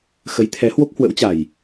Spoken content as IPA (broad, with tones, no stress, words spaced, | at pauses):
xə˨˦jt̪ʰɛ˨˦ hwo˦˥k̚hwə̰˧˥wt͡ɕa˨˩j